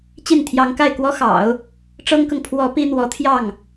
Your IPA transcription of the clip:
t͡ɕ i˥˩ n t̪ʰ j ɑ˧˥ ŋ k a˥˩ ɪ̯ k w ɔ˥ x ɑ̰˨˩˦ ʊ̯ | ʈ͡ʂ ɤ˥ ŋ k ɤ˨ ŋ pʰ w ɔ˧˥ p i˥ n̪ w ɔ˧˥ t̪ʰ j ɑ˥˩ ŋ

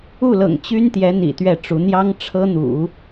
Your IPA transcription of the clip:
u˥˩ l ɤ̰˨˩ ŋ t͡ɕ y˥ n t̪ j ɛ˧˥ n̪ ḭ˨˩ t̪ ɥ ɛ˥˩ ʈ͡ʂ u˧˥ n̪ j ɑ˥ ŋ ʈ͡ʂʰ ɤ˥ n̪ ṵ˨˩˦

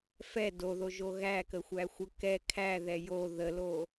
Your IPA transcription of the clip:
f ɛ d o ð o ʒ o ɣ æ k ə xʷ æ xʷ ə k ɛ kʰ æ ð ɛ j o ð ə l o

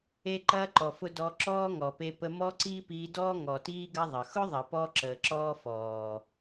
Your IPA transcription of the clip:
e˦ ǃ ɐː˦ ǃ ɔ˨ f ʊ˧ d ɔ˧ ǁ ɔː˦ ŋ ɔ˨ p e˧ p ə˧ m ɔ˦ ǀ iː˦ p iː˧ d ɔː˦ ŋ ɔ˨ t iː˦ ɡ ɐ˦ ðˤ ə˨ x ʊ˦ ðˤ ɐ˨ p ɔ˧ ǁ əː˨ ǁ ɔː˦ f ɔː˨

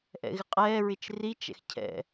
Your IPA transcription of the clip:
ʔ ɛ̰ ɣ ɪ qʼ ɛː ɹ ɪ t͡ʃ r i t͡ʃ ɛ̰ x cʰ ɛ̰

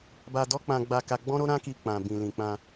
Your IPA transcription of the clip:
b a˧ d ɔ˦ k͡p ã˧ ɡ͡b a˧ k a˧ ɡ͡b ɔ̃˦ ɾ o˦ ɾ ã˦ k i˧ k͡p ã˨ b ĩ˨ l ĩ˨ k͡p ã˧

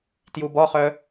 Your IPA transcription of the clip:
t j u b ɔ χ œ

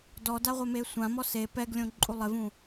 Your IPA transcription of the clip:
d ɔ d a ʁʷ ɛ m e sʷ ã m ɔ s e p ɛ ɡ lʲ õ ǃʼ u lˠ ɪ v ũ

